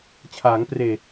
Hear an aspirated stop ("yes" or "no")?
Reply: yes